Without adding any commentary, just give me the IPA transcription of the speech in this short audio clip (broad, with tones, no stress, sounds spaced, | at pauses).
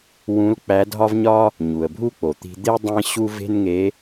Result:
w ũ˧˥ l k͡p æ˧˥ dʱ ɒ˥ v ɲ ɒ˥ | ɲ u˩ ə̯ bʱ u˥ k͡p o˩ t̪ i̤˧ d̪ e˥ dˤ ẽ˥ ɕ u˥ v e̤˥ n ŋ e˧˥